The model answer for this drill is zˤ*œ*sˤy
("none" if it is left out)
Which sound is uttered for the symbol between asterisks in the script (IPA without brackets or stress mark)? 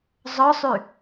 œ